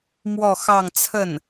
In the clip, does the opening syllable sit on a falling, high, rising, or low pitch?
falling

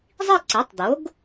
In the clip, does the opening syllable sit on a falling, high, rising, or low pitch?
falling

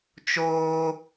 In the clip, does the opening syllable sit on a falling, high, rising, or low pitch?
high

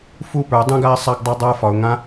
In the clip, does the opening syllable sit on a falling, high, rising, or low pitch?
falling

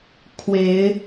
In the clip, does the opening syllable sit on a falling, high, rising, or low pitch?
rising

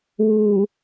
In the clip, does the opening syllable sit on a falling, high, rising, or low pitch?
low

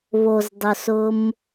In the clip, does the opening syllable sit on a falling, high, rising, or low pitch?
low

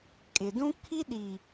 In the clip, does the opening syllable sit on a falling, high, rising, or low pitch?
low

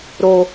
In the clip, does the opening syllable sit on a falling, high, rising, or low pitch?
high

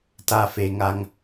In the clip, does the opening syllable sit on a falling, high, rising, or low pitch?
low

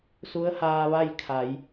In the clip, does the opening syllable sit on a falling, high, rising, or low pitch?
rising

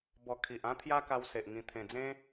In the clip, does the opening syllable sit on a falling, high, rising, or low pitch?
low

